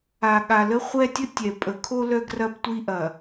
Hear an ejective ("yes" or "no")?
yes